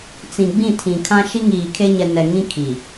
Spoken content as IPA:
t͡sĩ˨ ɡ͡bĩ˦˨tʰĩ˨kʰã˦ ʃi˦ŋiː˨kʰe˦ɲɛ˨ nɛ˨ŋĩ˦kʰi˨

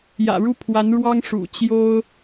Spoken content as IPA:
jä̰˨˩ɻu˥˩pʰwa˧˥nɻwɑ˥ŋ ʂṵ˨˩ t͡ɕjo˥ʊ̯

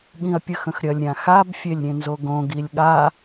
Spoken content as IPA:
ɠĩɐ̯pʲəxə̃xɾʲɐlʲ ɾʲãxab fʲelʲɾʲẽnzoɡõ ɡilʲɠa

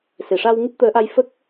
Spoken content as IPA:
se˨˩˨ʂa˧w ŋɨ˦˥p̚t̪əː˧˥ʔa˧jfə˦˥k̚

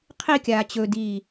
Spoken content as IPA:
qʰikʲaː t͡ɕɵdiː

